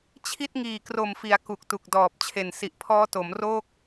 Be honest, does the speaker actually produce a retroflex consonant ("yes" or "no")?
no